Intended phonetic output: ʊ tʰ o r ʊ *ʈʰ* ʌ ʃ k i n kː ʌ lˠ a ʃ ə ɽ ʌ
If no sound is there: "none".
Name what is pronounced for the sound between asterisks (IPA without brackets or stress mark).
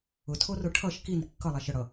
ʈʰ